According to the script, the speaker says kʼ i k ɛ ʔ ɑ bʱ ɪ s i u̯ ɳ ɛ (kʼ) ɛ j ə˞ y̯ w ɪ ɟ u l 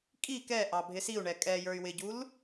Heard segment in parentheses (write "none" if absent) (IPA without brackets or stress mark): kʼ